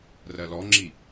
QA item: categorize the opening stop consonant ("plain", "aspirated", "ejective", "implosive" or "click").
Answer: click